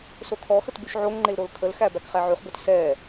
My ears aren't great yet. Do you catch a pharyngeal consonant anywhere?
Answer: yes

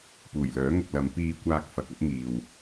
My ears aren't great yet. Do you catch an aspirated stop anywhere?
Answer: no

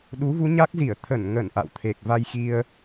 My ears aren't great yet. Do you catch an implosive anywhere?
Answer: yes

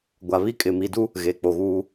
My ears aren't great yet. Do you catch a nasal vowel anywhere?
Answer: no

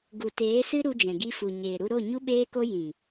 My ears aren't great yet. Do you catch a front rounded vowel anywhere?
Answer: no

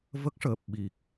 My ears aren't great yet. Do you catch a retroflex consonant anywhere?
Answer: yes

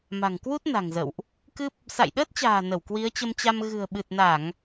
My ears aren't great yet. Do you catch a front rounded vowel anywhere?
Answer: no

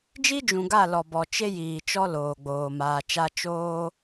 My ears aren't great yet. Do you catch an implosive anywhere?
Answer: no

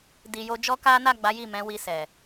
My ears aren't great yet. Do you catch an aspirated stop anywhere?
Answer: no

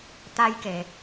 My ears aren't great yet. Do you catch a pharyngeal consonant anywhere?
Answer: no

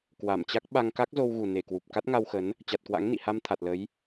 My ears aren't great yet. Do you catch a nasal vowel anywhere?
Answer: no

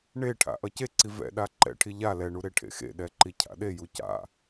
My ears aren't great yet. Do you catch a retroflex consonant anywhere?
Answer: yes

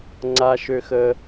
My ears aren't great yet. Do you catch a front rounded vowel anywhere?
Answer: yes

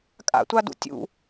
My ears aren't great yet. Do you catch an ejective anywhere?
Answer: yes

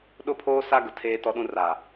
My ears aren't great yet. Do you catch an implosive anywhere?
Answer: yes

